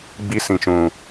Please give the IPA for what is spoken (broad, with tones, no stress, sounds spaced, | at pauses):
ɡ͡b i˧ s ĩ˨ t͡ʃ ũ˨